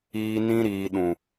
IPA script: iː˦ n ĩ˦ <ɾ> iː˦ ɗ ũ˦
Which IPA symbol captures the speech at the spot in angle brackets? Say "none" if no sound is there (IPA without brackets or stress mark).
ɾ